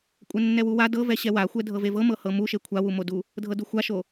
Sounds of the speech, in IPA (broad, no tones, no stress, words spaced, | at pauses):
kʷʼɛnːɛwuwa dɤ vɛɕɛwaxʷɛ dʱɤvevɤmɤ hɤmuʃe kʷʰawumodu | dʱɤduxʷaʃo